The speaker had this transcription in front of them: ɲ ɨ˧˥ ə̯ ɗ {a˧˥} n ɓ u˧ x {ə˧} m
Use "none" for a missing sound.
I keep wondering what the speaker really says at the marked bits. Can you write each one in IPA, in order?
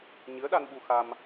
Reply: a˧, a˧

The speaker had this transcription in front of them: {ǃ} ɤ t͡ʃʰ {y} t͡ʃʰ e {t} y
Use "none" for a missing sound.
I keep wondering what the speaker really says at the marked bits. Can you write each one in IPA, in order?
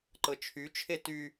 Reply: ǃ, y, t

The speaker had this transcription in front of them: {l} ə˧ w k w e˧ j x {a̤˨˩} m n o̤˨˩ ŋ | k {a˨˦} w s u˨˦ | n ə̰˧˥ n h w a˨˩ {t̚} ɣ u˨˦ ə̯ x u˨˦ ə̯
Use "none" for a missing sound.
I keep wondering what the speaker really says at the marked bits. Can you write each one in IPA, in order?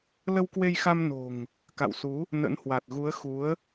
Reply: l, a˧, a̰˧˨, t̚

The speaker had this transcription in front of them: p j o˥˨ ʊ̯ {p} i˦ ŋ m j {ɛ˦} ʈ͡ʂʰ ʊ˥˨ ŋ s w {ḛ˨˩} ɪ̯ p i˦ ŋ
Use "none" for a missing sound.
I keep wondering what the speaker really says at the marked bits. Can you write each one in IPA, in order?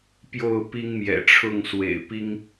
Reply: p, ɛ̰˨˩, ḛ˨˩

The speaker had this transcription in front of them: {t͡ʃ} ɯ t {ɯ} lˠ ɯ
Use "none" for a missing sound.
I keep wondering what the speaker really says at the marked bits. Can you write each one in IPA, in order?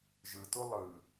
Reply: ʒ, u

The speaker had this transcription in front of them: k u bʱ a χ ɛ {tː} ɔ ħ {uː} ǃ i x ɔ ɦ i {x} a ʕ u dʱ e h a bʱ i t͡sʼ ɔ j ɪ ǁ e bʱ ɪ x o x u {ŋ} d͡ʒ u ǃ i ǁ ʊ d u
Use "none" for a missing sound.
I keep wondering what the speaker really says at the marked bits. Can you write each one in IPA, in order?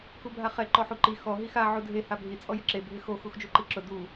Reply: ǃ, u, x, x

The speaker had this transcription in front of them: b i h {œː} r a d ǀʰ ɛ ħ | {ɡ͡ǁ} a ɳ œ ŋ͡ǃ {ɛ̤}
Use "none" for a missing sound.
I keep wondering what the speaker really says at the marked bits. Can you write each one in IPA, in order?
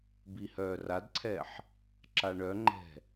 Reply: œː, ǁ, ɛ̤

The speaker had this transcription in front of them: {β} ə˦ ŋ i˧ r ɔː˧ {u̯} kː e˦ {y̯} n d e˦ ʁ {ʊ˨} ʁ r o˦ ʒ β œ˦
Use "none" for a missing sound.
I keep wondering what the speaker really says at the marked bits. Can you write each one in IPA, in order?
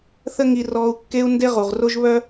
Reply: θ, u̯, u̯, u˨

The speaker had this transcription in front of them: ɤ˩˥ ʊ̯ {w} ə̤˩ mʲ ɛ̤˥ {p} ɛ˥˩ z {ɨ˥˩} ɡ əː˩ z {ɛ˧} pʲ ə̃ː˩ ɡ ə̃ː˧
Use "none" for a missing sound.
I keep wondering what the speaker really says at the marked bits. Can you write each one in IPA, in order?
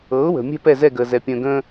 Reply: w, p, ɛ˥˩, ɛ˩

